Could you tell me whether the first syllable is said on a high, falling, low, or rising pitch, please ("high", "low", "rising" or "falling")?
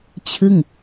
falling